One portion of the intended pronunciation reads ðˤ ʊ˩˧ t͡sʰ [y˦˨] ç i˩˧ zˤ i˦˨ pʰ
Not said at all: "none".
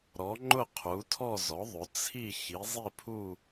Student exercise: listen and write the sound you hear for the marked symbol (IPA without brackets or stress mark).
i˦˨